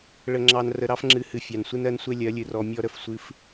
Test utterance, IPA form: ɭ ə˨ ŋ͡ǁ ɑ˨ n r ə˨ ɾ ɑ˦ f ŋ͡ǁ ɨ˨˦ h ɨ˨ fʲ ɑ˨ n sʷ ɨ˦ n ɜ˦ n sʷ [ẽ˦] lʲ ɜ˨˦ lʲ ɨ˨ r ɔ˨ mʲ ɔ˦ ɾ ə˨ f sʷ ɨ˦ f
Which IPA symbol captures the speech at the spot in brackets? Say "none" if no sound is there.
e˦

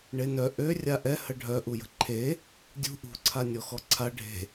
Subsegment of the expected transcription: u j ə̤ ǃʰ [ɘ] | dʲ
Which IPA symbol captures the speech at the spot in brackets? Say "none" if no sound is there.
e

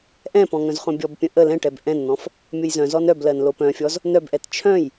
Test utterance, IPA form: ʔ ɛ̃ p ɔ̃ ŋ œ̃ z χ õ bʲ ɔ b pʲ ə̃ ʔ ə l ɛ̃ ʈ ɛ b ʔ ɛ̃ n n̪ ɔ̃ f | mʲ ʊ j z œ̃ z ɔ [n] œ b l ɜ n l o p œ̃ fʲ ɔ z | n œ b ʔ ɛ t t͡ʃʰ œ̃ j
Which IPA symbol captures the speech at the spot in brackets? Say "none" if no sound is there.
n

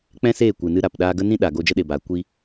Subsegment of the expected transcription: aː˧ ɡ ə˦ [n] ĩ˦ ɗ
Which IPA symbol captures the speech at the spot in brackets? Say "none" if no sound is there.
n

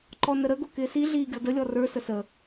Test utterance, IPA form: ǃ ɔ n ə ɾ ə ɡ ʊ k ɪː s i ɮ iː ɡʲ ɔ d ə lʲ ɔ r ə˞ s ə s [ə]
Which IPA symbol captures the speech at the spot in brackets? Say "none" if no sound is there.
ə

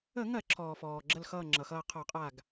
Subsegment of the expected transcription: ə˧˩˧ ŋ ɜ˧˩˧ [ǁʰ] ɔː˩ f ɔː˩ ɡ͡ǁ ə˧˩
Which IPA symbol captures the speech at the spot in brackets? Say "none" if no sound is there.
ǁʰ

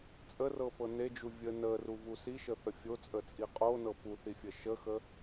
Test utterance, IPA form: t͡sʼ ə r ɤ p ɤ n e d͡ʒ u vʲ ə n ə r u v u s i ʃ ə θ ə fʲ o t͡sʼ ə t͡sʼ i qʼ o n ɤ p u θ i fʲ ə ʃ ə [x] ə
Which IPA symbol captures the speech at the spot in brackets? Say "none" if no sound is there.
x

